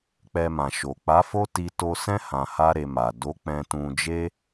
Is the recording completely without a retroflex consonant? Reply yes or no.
yes